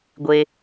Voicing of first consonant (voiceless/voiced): voiced